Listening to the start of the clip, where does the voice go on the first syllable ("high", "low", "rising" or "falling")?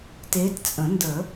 rising